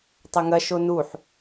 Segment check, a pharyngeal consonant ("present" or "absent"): present